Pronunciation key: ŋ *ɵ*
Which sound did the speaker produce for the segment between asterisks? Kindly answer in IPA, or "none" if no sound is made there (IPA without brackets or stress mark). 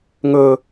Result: ɵ